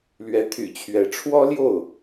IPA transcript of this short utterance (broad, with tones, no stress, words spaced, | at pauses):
lɥɛ˧˥t̪ʰy̰˨˩t͡ɕʰɥɛ˧˥ ʈ͡ʂʰwɔ˥ljo˥˩ʊ̯